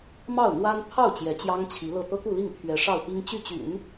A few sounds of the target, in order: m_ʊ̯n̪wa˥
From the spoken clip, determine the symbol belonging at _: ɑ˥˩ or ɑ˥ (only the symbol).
ɑ˥˩